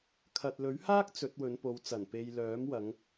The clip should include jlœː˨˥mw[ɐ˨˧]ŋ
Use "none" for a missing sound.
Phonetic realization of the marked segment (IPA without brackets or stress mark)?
ɐ˨˧